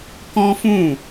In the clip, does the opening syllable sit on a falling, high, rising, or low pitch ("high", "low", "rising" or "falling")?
high